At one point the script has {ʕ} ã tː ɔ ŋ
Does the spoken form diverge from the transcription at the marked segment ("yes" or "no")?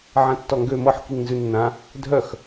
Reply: no